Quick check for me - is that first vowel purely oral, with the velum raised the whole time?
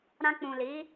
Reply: no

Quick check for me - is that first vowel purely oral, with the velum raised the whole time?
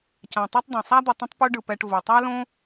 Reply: no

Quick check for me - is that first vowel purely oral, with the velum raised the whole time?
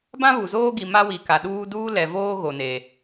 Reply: no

